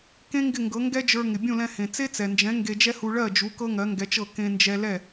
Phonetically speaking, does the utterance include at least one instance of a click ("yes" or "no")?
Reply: no